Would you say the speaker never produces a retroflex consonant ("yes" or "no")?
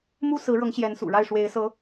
no